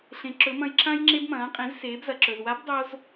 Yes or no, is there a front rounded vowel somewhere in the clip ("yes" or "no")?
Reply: no